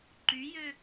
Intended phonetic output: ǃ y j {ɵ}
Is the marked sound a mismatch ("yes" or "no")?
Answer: yes